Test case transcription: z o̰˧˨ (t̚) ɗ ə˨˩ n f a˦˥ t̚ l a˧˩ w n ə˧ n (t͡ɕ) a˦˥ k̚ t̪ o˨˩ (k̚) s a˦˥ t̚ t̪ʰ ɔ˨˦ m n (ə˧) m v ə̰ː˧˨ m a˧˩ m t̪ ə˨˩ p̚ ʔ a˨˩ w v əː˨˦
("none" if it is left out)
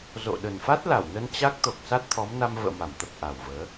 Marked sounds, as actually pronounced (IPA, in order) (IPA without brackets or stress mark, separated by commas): none, t͡ɕ, k̚, a˧